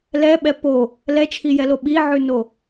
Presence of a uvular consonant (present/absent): absent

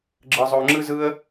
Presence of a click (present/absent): present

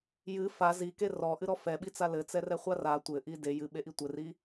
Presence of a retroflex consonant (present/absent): absent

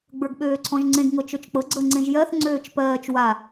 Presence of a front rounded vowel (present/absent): present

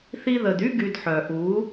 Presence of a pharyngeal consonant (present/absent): present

